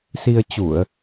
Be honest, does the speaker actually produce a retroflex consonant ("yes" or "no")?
no